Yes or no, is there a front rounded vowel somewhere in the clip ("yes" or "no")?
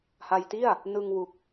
no